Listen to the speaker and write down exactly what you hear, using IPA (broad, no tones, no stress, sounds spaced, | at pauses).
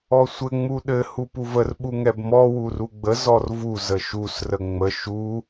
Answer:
ɔ sʷ ɘ ŋ͡m u ɗ ɘ h u p u v ə r ɓ u ŋ ɛ b m ɔ w u r u ɡ͡b ə z ɔ r v u z ə ʃ u s r ə ŋ͡m ə ʃ u